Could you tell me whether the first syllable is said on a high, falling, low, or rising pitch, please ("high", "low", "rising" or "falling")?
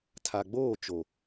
low